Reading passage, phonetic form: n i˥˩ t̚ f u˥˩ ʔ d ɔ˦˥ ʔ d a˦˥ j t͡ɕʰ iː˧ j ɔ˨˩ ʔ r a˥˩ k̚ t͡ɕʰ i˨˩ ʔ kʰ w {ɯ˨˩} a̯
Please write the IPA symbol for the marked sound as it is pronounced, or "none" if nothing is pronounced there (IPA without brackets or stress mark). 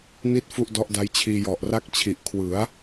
ɯ˩˦